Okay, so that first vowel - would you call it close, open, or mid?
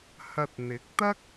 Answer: open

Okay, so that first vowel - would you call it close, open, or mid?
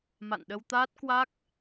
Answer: open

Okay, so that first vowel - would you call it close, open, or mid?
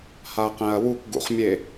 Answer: open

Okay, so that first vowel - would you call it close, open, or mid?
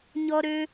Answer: mid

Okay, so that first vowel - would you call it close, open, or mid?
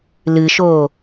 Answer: close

